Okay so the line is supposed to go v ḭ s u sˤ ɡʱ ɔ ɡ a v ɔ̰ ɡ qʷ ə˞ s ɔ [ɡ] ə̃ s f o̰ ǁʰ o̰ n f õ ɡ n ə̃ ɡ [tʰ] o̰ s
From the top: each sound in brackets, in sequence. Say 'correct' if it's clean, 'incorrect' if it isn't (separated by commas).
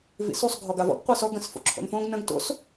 correct, incorrect